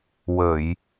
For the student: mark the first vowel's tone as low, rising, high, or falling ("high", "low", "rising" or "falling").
low